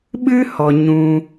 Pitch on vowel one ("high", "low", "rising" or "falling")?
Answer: high